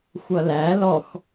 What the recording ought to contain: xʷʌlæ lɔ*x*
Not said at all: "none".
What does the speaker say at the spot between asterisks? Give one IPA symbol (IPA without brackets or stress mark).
x